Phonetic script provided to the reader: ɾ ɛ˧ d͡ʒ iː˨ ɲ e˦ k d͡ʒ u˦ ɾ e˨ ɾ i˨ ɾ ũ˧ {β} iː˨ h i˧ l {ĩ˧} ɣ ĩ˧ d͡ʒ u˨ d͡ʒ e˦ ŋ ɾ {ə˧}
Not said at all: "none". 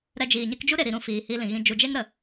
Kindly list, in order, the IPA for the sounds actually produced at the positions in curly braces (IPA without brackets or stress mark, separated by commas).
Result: f, ĩ˨, ə˨